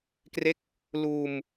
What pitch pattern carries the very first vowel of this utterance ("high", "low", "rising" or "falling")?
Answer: falling